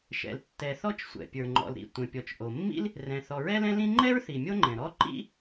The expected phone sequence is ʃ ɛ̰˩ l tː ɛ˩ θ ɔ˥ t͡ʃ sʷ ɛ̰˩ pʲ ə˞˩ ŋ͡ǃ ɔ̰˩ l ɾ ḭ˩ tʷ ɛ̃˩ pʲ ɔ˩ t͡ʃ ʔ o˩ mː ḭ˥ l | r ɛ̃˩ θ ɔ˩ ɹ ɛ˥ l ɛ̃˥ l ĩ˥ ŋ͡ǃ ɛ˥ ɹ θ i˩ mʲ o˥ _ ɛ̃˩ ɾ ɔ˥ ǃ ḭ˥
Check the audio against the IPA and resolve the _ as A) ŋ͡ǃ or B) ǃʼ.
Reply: A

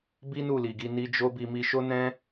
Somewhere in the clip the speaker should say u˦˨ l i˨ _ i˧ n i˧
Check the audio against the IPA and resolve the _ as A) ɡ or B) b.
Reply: A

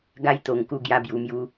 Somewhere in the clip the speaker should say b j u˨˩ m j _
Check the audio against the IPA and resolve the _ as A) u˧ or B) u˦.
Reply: A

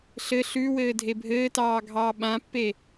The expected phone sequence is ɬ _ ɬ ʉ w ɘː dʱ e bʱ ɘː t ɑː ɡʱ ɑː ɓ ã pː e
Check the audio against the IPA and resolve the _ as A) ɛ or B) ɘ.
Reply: B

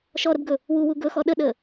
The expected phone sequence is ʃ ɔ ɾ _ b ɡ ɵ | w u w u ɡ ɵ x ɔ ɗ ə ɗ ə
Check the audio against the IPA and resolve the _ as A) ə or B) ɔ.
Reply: A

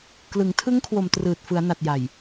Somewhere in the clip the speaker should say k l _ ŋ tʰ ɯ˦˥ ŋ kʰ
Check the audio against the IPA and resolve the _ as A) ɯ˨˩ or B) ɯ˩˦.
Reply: B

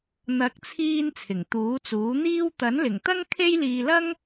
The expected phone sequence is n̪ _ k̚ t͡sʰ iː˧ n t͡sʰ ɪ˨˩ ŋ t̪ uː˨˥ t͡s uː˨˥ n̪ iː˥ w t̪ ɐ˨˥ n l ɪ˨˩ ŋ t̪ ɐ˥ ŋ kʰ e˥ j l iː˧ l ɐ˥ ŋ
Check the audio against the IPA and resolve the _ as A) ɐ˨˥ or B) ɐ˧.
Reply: A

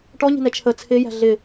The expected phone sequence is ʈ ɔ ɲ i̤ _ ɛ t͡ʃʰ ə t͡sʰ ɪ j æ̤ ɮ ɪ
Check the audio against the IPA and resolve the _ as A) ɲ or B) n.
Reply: B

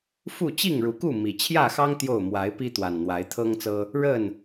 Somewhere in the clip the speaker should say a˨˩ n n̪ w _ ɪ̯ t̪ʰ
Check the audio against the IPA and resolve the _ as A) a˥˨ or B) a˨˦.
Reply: B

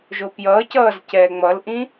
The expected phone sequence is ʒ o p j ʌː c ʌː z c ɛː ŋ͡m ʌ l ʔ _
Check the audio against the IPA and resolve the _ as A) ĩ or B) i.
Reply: A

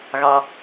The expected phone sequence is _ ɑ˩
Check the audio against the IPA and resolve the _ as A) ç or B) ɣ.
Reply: B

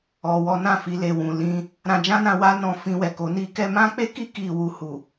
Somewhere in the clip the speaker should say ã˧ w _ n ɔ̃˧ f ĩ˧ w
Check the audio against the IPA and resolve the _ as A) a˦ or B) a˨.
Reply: A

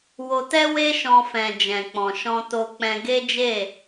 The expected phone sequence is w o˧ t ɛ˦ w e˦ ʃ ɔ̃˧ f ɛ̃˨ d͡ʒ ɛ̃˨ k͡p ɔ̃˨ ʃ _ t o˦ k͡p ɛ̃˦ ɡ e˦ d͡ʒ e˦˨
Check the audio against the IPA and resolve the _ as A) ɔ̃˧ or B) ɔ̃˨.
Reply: A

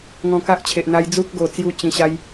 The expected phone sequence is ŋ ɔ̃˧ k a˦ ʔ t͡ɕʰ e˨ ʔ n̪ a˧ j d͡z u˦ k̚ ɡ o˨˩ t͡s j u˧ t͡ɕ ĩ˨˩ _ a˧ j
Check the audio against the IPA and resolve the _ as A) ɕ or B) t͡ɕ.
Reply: A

